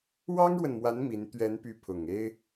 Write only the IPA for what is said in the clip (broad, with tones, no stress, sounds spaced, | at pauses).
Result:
w ɑ˥ ŋ ɻ w ə˨ n m w a˧˥ n m i˧˥ n t̪ ɥ ɛ˧˥ n p y˧˥ pʰ ʊ˨˩ ŋ e˥ ɪ̯